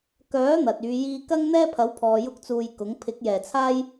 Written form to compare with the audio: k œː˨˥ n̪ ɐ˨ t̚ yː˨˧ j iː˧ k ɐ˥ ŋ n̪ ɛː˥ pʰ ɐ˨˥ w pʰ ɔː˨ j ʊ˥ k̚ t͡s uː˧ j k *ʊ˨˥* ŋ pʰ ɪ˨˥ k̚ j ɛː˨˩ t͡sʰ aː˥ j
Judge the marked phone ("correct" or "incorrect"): correct